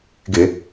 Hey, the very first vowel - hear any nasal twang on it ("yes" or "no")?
no